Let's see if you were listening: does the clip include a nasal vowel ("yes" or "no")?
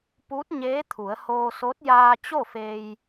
no